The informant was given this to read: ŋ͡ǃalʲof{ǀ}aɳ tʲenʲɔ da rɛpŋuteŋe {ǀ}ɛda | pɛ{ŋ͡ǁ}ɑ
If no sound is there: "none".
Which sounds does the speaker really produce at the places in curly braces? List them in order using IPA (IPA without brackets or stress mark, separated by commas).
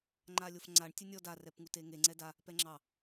ŋ͡ǀ, ŋ͡ǀ, ŋ͡ǁ